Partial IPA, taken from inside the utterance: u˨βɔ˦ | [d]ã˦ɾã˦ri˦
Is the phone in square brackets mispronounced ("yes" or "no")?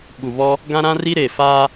yes